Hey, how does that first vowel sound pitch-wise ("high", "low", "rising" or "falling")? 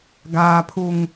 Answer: low